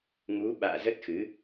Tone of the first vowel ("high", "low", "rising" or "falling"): rising